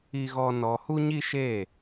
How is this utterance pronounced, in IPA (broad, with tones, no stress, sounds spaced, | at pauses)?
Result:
i˦ ɣ ɔ˦ n ɔ˧ h u˦ ɲ i˦ ʃ e˦˨